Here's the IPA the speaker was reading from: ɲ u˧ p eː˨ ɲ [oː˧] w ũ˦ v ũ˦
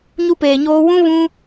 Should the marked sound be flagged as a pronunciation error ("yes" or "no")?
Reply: no